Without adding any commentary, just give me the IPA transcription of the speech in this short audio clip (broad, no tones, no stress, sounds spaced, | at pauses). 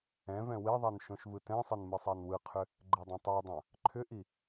ɛ̃ v ɛ̃ w e ðˤ a n ʃ õ ʃ v ɯ t ɛ̃ sˤ ɛ n m ɯ sˤ æ n w ɯ qʰ ʏ | ɡ͡ǃ e dˤ ɛ̃ tˤ o dˤ ã | ǃʰ ʏ ʔ i